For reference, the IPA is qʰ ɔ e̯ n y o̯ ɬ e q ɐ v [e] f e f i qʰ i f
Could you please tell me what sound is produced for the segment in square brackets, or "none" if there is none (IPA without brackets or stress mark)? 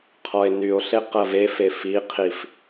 e